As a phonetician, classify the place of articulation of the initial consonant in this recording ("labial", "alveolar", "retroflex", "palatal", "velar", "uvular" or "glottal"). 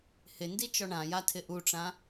glottal